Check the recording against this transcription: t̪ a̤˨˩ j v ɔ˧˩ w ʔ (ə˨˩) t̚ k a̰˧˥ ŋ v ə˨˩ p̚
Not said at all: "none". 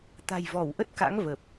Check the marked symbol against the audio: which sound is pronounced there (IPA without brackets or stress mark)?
ə˦˥